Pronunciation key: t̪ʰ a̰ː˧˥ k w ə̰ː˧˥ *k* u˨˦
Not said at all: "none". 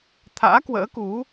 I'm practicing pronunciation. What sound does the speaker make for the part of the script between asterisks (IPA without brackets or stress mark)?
k